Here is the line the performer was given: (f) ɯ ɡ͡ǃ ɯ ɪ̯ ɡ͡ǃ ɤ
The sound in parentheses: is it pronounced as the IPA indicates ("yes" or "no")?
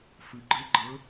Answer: yes